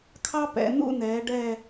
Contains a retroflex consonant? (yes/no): yes